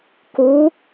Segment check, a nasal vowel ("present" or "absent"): absent